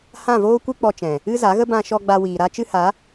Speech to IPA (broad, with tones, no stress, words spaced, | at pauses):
hã˦˨voː˦kʷɨ˦ k͡pɔ˧t͡ʃɛ̃˨ | ɨ˦za˨˦ɣə˦ bã˧ʃɔ˧ ɡ͡ba˧wiː˨ɾa˦ t͡ʃɨ˦ha˨˦